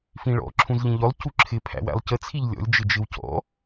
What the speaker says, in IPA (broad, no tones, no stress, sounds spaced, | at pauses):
f ĩ ɭ ɔ̰ ǁʰ ũ z ʎ ĩ ʎ ʊ lˠ c u ǁʰ ɪ pʰ æ̰ w æ̰ lˠ c ə t͡sʰ i ʎ lʲ ɔ̰ lʲ d͡ʒ ɪ d͡ʒ ɪ w c ɔ̰